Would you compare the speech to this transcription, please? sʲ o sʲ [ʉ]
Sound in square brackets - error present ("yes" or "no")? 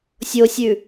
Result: no